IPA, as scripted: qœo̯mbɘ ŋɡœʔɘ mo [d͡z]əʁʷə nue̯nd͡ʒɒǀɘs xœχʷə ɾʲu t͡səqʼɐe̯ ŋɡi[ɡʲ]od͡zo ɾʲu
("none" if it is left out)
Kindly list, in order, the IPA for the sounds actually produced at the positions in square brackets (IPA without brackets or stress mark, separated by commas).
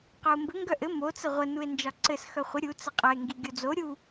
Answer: t͡s, ɡʲ